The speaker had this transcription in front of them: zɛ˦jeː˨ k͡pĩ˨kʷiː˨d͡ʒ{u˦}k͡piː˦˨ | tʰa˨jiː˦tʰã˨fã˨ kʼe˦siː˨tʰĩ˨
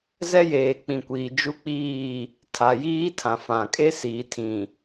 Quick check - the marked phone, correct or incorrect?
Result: correct